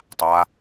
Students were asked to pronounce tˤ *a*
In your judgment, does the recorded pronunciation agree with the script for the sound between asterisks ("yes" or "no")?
yes